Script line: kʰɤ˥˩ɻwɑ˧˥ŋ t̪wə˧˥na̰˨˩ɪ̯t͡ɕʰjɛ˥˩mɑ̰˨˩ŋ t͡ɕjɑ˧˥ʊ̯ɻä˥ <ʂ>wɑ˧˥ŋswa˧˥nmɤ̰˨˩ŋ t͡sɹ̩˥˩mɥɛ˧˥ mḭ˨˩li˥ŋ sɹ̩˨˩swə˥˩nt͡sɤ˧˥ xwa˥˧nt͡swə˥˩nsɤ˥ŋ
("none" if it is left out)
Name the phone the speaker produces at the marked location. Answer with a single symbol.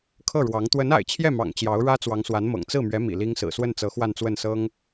t͡s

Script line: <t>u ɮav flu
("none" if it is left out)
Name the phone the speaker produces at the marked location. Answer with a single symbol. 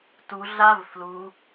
t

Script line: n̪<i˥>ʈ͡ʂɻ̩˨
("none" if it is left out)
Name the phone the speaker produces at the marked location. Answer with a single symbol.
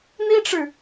i˥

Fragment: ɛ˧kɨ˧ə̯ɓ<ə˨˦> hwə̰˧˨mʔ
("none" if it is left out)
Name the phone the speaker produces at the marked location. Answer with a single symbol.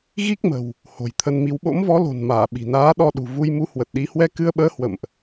əː˨˦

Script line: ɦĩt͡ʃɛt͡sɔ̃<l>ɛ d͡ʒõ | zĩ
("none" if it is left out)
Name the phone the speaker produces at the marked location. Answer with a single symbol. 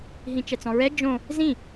ɹ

